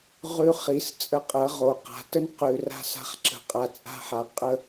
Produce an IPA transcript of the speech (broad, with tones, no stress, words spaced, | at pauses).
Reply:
ʁʉ˧ χi˨˦st͡sʼə˧qʼɐ˨˦ ʁo˨qa̤˨tə˦n qʉ˨ ra̤˧sa̤˧χǁə̤˨ qʼa˨t͡sʼa̤˧ħa˨ qʼə˧